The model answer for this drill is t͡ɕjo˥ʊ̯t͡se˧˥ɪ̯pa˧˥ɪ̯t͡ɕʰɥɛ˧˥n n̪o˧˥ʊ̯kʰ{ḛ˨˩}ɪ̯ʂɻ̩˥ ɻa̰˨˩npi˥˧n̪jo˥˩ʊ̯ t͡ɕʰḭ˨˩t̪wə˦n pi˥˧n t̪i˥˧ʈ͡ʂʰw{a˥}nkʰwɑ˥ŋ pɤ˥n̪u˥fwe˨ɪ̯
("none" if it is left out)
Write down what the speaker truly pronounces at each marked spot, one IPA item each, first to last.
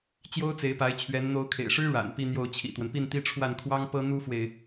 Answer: ḛ˨˩, a˥˩

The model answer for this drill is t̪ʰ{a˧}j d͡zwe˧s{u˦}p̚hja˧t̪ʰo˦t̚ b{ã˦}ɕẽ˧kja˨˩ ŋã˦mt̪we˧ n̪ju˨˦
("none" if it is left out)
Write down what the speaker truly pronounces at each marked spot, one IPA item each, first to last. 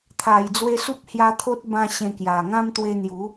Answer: a˨˩, u˦, ã˦

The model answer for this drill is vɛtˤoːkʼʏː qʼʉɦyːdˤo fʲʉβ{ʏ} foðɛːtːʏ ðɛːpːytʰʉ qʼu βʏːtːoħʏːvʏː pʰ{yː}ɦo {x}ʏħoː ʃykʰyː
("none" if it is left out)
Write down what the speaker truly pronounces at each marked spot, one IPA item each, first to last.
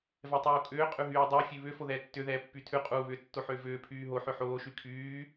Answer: ʏ, yː, ħ

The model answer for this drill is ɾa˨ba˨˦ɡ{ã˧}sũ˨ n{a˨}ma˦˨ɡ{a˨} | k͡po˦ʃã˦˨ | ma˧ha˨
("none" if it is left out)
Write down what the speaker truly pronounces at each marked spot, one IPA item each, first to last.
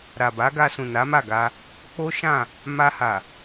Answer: a˧, a˨˦, a˧

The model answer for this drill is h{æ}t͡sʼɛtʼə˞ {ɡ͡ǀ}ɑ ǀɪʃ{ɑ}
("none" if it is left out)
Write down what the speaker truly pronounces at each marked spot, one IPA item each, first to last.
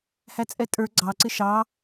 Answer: æ, ɡ͡ǀ, ɑ

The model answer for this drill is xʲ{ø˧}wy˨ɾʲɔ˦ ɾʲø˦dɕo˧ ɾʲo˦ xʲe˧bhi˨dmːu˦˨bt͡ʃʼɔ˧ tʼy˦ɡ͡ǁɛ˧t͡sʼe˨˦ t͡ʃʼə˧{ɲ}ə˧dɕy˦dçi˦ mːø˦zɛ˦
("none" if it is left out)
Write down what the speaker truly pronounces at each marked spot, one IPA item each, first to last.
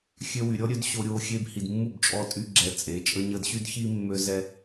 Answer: ø˧, ɲ

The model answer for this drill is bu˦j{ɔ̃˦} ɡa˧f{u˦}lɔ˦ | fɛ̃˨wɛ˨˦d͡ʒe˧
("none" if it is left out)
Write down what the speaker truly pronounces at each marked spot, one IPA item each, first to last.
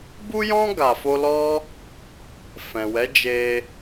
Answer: ɔ̃˦, o˦

